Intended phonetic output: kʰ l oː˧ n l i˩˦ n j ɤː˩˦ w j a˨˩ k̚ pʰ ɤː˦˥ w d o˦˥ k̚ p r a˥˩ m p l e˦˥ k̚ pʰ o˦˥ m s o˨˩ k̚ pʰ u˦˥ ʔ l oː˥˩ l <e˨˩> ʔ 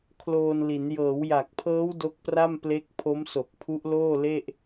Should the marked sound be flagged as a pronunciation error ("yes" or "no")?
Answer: yes